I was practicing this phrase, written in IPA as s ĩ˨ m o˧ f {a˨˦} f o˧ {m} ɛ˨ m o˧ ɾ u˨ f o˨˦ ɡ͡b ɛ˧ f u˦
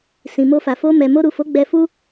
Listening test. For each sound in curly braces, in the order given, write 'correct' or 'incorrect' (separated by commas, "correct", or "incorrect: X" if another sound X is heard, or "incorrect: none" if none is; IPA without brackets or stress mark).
incorrect: a˨, correct